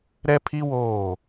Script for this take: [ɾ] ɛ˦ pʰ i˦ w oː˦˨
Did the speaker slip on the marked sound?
no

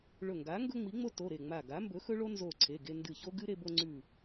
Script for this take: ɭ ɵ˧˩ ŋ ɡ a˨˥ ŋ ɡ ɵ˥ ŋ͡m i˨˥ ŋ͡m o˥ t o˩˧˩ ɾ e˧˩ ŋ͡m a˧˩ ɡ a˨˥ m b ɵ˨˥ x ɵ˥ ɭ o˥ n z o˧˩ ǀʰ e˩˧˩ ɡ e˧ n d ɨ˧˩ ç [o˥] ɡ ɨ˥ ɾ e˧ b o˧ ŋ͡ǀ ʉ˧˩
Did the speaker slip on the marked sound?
no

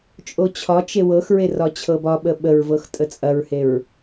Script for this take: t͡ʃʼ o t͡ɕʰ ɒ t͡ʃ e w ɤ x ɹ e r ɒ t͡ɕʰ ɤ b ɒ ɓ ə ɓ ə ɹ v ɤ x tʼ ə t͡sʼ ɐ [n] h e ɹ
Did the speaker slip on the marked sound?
yes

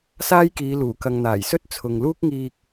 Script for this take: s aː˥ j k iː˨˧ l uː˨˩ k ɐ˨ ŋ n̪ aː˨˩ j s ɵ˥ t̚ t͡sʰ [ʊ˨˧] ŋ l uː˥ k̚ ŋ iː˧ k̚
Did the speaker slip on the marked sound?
yes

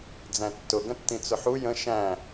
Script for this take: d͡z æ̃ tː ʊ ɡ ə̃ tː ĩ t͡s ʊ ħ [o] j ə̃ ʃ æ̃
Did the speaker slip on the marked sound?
yes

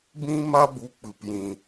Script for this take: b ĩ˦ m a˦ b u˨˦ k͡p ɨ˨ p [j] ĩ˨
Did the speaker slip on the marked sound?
no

